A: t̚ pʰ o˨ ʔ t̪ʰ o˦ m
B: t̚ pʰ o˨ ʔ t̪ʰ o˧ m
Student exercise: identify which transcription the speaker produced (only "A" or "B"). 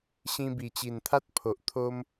A